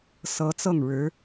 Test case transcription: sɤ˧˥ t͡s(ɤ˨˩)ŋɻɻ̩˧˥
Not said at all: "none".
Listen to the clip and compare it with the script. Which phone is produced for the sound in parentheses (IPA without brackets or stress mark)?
ɤ˥˩